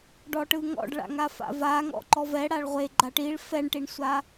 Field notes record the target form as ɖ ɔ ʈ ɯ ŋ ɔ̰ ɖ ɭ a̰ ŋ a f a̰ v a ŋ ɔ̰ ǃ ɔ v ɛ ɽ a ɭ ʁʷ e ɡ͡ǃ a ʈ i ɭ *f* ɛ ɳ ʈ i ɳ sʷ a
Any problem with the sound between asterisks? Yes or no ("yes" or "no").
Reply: no